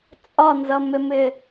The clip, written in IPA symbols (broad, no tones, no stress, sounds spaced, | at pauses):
t͡sʼ ɒ n z ʌ m ɪ m ɪ